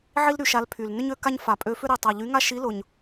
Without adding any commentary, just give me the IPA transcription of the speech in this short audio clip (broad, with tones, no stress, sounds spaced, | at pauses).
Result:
ʕ i˦ l ɾ y˨˥ ʃ a˨˥ l pʰ y˨˩ l n ʏ˦ ɲ ø˦ k a˦ ɲ f a˨˩ pʼ ø˨˥ f ʏ˦ ɾ i˨˩ tˤ a˨˩ ʎ y˨˥ ŋ a˦ ʃ i˨˥ l ʊ˨˩ ɲ